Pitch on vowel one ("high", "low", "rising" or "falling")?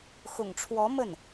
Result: low